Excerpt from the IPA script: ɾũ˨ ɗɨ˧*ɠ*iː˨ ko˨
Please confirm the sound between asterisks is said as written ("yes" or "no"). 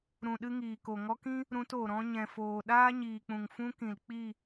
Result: no